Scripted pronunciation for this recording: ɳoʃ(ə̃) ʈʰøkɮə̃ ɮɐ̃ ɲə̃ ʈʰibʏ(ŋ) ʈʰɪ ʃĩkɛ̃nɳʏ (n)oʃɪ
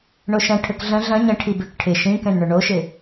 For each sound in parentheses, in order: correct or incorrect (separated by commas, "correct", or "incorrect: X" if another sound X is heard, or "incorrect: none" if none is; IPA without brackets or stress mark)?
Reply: incorrect: ɐ̃, incorrect: k, incorrect: ɳ